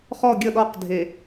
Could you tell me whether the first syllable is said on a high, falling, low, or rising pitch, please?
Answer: falling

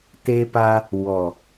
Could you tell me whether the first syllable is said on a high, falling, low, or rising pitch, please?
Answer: high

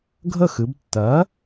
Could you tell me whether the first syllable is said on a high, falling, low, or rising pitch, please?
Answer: falling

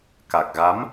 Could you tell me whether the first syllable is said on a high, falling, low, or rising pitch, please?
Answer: low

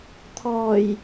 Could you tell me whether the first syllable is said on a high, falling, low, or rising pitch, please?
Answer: low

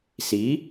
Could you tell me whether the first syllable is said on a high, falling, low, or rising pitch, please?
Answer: rising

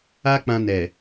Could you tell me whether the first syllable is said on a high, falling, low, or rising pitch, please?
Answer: high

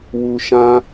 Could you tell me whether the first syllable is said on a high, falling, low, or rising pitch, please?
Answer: low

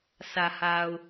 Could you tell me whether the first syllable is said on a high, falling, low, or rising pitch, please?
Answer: low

